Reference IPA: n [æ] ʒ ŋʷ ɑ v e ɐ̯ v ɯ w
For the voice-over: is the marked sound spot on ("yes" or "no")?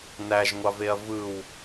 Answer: yes